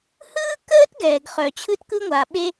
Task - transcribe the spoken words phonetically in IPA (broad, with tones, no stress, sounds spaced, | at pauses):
h ɯː˥ k əː˥ t ɡ ɛː˩ ɡ χ œ˩ t͡ɕʰ ɯ˥ t k ɯ˥ ŋʷ a˩ ɓ e˥